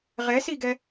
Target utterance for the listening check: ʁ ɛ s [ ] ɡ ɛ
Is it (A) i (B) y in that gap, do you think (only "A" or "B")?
A